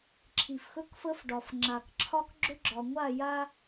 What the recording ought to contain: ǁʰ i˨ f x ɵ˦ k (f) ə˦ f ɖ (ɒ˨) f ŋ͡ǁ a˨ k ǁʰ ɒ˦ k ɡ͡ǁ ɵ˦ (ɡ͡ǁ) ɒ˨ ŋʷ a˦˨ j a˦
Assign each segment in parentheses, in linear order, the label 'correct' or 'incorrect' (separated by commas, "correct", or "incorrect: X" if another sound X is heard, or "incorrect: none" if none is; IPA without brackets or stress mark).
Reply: correct, correct, correct